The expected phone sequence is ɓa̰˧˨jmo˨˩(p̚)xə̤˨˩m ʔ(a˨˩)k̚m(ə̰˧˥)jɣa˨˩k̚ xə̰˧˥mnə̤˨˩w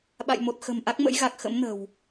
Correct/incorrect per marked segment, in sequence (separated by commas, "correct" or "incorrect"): incorrect, incorrect, correct